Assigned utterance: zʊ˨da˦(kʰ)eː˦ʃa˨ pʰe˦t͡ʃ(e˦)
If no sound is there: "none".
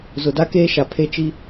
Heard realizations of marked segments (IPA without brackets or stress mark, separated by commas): k, i˦